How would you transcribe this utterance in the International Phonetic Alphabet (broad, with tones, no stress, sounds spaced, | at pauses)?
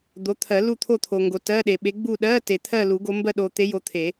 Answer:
d̪ o˨˦ t̪ʰ ɜ˨˩˦ l u˦˨ t̪ʰ o˦˨ t̪ʰ o˨ ŋ ɡ o˨ t ɜ˧˥˧ ɗ e˨ ɓ e˨˦ ɡ͡b u˦˨ ɗ ɜ˧˥˧ t e˨ t̪ʰ ɜ˦˨ l u˨˩˦ ɡ o˨˦ m b ɜ˦˨ ɗ o˨ t̪ e˨˦ j o˨˦ t̪ʰ e˨˩˦